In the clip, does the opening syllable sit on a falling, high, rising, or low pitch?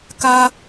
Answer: high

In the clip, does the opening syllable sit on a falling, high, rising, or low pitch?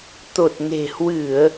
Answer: low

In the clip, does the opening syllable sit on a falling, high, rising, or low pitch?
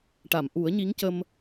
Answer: low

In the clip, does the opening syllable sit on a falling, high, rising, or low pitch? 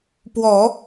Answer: low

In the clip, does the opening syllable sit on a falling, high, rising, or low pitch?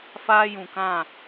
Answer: high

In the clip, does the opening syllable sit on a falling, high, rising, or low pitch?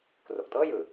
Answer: low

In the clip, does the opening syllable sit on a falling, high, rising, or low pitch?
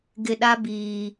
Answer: low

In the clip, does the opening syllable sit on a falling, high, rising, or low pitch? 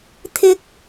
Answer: high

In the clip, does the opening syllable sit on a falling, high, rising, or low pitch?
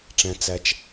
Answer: low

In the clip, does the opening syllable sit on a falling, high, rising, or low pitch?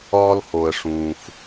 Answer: high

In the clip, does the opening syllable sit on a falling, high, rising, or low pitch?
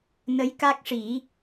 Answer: rising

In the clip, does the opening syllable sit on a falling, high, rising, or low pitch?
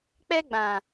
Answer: high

